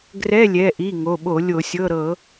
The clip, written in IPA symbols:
ɡrɛ˧˥˧lʲɛ˩˧˩ʔi˩˧˩ ŋo˩˧˩ɓo˧˩˧ lʲo˧˩˧sʲɤ˧˥˧ ɾɤ˧˩˧

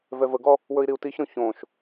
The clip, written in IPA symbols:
vɛvəɡɔ | wɵi̯ɾiu̯tiçɾõ çõʃ

